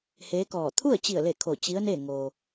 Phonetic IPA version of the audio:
h eː˧˥ k ɔː˧˩ t̪ʰ u˥˨ ə̯ t͡ɕ i˧˩ ə̯ l e˧˩ kʰ o˧˩ t͡ɕ i˧˥ ə̯ n e˥˨ ŋ oː˩

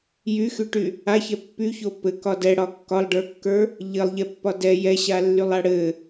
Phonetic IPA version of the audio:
j y x y ʈ y | a ç ɛ pː y ç o p ɘ k ɒ d ɛ ɽ ɒ kː ɒ lˠ ɖ ə˞ kː ə˞ | ʎ ɘ lˠ ʎ ɛ pː ɒ d ɛ j ɛ ɕ a lː y lˠ a ɽ ɘ

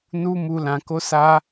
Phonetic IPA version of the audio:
n u˦ m u˧ l ã˧ k o˦ s a˦

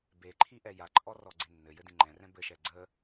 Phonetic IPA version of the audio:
b e ǃʰ i ʔ ɛ j a ǃʼ ɔ r ɔ ɡ͡ǀ e nː ɘ j ɘ d ĩ ŋ͡ǃ ɛ̃ r ɛ̃ b ɘ ʃ ɛ ɡ͡ǀ ə

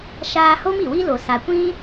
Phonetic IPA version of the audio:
ʃ aː˧ h o˦ m i˨ w i˦ l o˨ s a˨ kʷ ĩ˦

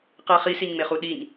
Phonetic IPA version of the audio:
q ɛ χ i s i ɲ ŋ͡m e χ u ɗ i ɲ

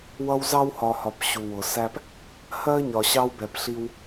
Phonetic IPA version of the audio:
w ʌ˦ w z ɑ˦ w h ɒ˨ h ɒ˨ p ɕ u˨ w ʊ˨ s æ˦ p | h ɜ˦ ɲ ɒ˨ ɕ ɑ˦ w b ɛ˨ p ɬ i˦ w

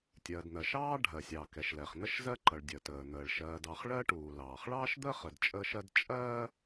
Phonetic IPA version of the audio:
tʲ ɜ˩ d n̪ ɜ˩ ʃ ɑː˥ ɖʱ ɜ˩ sʲ ɑ˩ k ɛ˩ ʃ l ɛ˩ χ n̪ ə˥ ʃ z ɜ˥ ǃ ʌ˩ ɭ dʲ əː˩ t əː˩ n̪ əː˩ ɭ ʃ ɜː˩ d ɑ˩ χ ɭ ɜ˥ ʈ uː˩ l ɑː˩ χ ɭ ɑː˥ ʃ d̪ əː˥ χ ə˩ d t͡ʃʼ əː˥ ʃ ɜ˥ d t͡ʃʼ ɜː˥

